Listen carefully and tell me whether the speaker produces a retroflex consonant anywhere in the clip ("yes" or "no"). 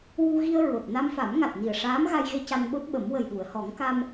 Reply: yes